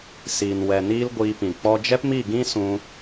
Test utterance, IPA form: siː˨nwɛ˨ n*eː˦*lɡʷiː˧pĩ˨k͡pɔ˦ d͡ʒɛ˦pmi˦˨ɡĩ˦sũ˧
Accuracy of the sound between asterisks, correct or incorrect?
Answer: incorrect